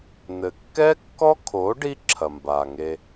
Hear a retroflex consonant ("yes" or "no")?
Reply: yes